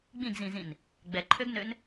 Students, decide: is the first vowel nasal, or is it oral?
nasal